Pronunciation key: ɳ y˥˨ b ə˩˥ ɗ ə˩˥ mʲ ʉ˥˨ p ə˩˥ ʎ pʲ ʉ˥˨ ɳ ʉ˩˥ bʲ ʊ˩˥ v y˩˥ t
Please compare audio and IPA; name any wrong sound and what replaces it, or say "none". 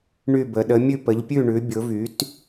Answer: none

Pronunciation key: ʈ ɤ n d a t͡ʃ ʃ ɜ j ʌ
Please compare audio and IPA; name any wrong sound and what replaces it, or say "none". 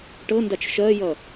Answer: none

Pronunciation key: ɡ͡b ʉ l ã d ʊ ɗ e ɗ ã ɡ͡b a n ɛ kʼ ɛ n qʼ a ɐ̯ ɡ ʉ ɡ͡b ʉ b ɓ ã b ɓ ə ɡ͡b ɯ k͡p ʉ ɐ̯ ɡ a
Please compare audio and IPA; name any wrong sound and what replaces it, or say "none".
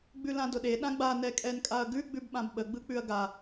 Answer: qʼ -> kʼ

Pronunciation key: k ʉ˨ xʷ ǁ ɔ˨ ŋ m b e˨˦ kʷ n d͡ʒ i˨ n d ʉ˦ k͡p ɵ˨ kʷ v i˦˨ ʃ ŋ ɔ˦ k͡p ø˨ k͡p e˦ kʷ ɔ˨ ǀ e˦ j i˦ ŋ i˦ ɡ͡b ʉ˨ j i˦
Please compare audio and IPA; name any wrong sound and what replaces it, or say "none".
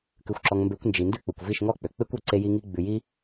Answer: none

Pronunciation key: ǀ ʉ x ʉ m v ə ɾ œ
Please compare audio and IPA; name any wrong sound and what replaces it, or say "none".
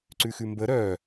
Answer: v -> b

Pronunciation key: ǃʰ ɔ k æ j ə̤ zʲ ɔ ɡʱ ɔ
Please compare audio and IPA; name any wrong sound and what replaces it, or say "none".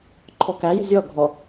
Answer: none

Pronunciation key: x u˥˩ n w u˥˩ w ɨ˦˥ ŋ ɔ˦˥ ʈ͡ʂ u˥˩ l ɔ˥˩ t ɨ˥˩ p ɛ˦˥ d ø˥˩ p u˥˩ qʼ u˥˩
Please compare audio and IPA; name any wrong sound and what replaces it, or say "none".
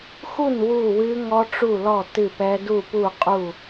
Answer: ø˥˩ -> u˥˩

